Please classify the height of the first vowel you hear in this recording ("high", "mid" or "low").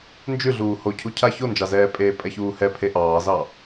high